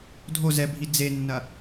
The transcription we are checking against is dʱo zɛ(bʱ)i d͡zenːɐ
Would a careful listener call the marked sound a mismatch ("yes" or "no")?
no